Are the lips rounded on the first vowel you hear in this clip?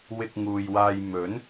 no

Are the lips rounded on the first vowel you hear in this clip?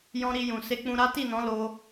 yes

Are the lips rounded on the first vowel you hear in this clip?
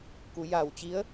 yes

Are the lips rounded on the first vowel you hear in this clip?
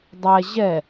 no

